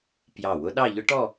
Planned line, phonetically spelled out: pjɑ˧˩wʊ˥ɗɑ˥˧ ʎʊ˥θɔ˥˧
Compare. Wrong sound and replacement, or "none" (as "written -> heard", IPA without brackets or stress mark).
θ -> ʈ